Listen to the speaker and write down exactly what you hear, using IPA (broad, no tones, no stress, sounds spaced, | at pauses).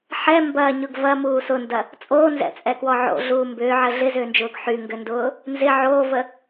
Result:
ħ ɛ m b ɐː ɲ ʊ ɡ v ɐ m uː s ʊ n d ɐ | t͡sʼ oː n z ɛ̰ t͡sʼ ɛ k w ɔ ʕ o̰ ɮ uː m b ʏː ʕ ə ɮ ɪ z ʏː n d͡ʒ ʊː ɡ ħ y ŋ ɡ ʏ n d ʊː | n z ɪ ʕ oː v ə